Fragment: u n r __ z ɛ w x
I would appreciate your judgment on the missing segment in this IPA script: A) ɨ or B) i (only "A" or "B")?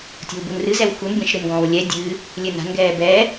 A